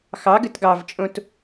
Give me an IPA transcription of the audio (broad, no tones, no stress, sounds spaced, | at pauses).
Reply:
x ɑ ɡ ɘ t ɡ ɑ v t͡ʃʼ õ t